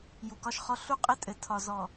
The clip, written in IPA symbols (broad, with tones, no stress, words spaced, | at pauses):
ju˨kɒ˦ʃχɔ˦ ɬu˦qʼɪ˦ tʼɘ˨ tʰɒ˨zɔ˨